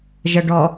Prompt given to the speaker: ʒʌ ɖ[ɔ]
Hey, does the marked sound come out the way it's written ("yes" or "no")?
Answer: yes